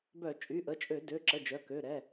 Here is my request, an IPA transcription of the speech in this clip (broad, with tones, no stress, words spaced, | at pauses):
bœ˧˩˧t͡ʃʼy˩˧˩ʔə˩˧˩ t͡ʃʼø˧˩˧dø˩˧˩ ǁə˩˧˩ d͡ʒœ˩˧˩kø˩˧˩ ɾɛ˩˧˩